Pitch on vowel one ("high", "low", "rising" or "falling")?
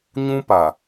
high